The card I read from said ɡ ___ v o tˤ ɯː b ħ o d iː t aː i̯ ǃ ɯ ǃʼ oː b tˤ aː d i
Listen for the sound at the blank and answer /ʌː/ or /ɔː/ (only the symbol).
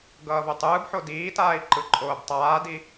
ʌː